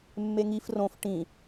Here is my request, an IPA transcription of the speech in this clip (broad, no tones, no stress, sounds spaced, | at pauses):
mː e ŋ i f r õ f ʈ ĩ